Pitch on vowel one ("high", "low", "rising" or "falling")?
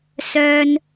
low